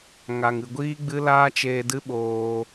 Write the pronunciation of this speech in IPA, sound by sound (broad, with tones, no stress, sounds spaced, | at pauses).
ŋ a˨ ŋ ɨ˨ ɡʷ iː˦ ɡ͡b ɨ˦ l aː˦ t͡ʃ eː˧ d ɨ˦ ɓ oː˧